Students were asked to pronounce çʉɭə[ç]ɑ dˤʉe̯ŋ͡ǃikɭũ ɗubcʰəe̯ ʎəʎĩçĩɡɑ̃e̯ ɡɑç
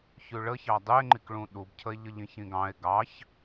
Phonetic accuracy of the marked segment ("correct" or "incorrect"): correct